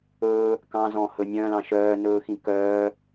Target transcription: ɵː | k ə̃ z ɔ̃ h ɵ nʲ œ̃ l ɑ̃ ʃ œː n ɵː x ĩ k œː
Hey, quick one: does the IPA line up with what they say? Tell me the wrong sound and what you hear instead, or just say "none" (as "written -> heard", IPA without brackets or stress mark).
ə̃ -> ɑ̃